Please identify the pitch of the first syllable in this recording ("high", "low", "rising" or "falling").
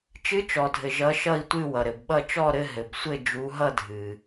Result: rising